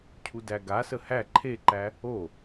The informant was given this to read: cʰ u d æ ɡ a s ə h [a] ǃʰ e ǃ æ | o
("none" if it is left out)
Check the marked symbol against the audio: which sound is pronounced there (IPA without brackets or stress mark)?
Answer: æ